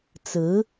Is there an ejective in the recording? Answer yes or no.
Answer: no